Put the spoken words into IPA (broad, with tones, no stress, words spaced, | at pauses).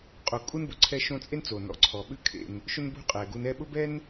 qʼo˨ kʼu˥nbʊ˩ǀʰɛ˦ ʃõ˦t͡sʼe˥nt͡so˩ nɔ̰˩ǀʰɔ˩ɓʉ˦ kʰḛ˨n | ʃʊ˦n bṳ˦qʼɛ˩ɡu˨nɛ˦ ɓʊ˥ bɛ˥n